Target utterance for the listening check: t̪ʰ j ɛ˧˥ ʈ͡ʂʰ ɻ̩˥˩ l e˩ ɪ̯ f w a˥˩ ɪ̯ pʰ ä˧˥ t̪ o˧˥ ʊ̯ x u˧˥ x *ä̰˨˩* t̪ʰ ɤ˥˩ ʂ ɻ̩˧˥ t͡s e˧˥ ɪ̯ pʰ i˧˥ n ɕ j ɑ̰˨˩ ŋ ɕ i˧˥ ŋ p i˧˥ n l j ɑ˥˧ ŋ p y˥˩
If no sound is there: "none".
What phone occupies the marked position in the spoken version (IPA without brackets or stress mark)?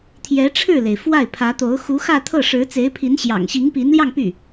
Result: ä˥˧